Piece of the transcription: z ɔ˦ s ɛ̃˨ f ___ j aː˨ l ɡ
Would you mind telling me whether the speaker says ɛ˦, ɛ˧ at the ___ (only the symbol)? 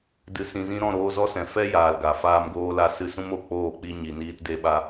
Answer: ɛ˦